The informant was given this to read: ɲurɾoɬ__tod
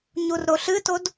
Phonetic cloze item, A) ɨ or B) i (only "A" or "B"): A